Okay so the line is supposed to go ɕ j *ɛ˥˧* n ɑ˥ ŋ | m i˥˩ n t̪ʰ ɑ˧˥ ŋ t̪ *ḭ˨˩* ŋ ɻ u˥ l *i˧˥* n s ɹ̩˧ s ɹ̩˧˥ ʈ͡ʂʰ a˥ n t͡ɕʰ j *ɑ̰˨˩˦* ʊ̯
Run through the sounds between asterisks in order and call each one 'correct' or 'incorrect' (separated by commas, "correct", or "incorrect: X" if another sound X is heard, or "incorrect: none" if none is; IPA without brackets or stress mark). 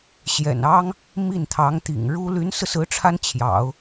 incorrect: ɛ̰˨˩, correct, incorrect: y˧˥, correct